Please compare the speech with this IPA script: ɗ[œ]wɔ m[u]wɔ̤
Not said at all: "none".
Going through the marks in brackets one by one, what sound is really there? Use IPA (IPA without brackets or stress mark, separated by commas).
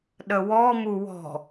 ə, u